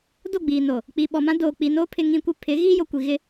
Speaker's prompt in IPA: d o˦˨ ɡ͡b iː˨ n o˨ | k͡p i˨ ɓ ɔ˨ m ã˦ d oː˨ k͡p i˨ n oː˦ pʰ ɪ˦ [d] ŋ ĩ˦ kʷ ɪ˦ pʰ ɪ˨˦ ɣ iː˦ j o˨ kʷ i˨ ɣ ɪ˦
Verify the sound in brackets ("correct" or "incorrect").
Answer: incorrect